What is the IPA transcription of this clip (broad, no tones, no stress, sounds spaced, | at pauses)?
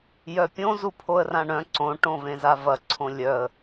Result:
j œ pʲ õ z u pʰ o ə̯ r ã ɳ œ̃ ǀ õ ʈ õ v ẽ z a v ɐ ǀʰ õ lʲ œ ə̯